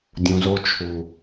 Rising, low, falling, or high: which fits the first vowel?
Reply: low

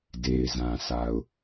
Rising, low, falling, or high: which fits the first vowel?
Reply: low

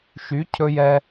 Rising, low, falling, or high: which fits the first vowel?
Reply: rising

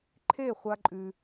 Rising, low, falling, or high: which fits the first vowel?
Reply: falling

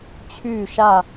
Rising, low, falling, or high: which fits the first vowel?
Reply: falling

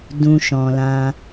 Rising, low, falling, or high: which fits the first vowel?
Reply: low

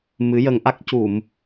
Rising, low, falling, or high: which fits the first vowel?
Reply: rising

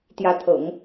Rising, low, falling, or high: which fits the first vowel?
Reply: rising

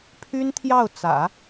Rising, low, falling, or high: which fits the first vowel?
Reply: high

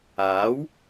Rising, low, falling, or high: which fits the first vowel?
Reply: rising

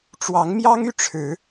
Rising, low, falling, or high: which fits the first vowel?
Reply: rising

